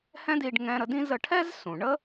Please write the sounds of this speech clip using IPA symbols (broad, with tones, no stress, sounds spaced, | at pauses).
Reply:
h ɛ̃˥ d i˧ ɖ ŋ ɛ̃˧ ɾ ə˧ d ĩ˥ z ə˧ ʈʰ ɛ˥ z s ũ˩ ɳ ə˥